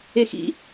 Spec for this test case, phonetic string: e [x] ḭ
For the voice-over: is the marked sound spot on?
yes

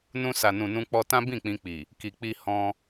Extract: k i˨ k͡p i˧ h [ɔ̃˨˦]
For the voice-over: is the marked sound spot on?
no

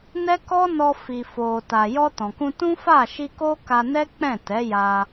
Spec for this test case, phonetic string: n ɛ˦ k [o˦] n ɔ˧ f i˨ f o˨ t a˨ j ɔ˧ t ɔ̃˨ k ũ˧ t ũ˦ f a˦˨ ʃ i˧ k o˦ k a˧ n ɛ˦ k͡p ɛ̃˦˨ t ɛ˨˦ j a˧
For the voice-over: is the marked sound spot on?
no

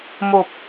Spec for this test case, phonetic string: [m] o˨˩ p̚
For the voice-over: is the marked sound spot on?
yes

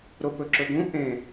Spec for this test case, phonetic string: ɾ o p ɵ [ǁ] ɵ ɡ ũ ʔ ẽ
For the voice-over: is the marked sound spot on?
yes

